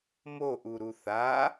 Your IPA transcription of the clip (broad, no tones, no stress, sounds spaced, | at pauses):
m o ʔ u ɾ u θ a